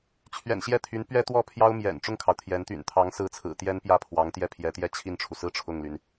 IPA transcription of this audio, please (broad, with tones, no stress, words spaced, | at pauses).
t͡ɕʰɥɛ̰˨˩nɕjɛ˥˩t̪ʰy˧˥n pɥɛ˥t̪wɔ˥˩ pʰjɑ˥ʊ̯mjɛ̰˨˩n ʈ͡ʂʊ˥˩ŋkʰɑ˩ʊ̯ t̪ʰjɛ˧˥nt̪y̰˨˩n t̪ʰɑ˧˥ŋsɹ̩˧˥ t͡sʰɹ̩˨˩t̪jɛ˥n pjä˥˩pʰwɑ˧˥ŋt̪jɛ˥˩ pʰjɛ˧˥t̪jɛ˥˧t͡ɕʰi˥˩nʈ͡ʂʰu˩ sɹ̩˥˧ ʈ͡ʂʰʊ˥˩ŋly˩n